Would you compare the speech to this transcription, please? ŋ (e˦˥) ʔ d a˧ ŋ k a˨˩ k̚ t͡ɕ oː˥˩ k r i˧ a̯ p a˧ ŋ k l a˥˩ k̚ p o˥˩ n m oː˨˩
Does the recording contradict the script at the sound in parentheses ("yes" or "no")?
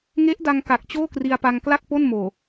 no